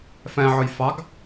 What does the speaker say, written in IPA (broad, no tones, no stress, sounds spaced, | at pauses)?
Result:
f ɛ̃ ʕ ʊ j f ɑ ɡ